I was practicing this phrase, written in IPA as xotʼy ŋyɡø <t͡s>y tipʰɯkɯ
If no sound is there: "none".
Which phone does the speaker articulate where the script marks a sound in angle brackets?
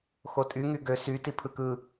s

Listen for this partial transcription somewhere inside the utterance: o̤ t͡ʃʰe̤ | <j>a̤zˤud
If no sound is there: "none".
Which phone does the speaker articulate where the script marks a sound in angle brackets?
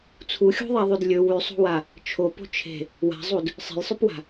w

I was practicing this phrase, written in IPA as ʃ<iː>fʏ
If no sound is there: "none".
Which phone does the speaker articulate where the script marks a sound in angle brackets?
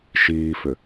iː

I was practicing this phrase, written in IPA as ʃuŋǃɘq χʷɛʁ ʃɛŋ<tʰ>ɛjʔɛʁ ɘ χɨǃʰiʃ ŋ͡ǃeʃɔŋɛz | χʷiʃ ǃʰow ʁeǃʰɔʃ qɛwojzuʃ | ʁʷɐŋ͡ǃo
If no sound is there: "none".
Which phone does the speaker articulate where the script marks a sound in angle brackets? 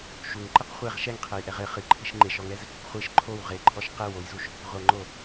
qʰ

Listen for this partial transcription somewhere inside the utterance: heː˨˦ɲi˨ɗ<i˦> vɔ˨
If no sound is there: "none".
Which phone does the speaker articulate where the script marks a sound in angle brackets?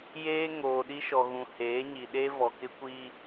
e˦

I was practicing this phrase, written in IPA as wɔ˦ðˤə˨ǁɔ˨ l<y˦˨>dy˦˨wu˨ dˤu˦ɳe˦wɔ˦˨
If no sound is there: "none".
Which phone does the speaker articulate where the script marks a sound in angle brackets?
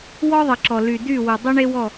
y˨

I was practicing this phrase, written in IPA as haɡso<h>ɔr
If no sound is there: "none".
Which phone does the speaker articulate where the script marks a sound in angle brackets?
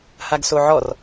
ʕ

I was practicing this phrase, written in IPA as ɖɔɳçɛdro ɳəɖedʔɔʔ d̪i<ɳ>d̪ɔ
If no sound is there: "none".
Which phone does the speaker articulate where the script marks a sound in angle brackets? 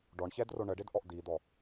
none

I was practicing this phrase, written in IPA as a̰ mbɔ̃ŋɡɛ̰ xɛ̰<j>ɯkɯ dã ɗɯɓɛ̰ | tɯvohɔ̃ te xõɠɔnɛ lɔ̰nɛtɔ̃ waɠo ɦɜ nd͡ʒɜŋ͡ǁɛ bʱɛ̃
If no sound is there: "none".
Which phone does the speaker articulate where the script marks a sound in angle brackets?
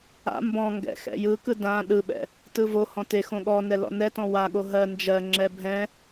j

